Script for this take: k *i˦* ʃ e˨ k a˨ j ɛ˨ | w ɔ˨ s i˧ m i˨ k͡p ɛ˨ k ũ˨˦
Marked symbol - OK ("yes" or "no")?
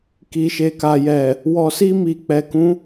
no